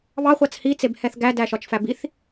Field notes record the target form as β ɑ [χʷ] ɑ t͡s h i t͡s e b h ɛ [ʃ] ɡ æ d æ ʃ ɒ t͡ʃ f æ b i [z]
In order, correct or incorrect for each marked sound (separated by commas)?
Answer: correct, incorrect, incorrect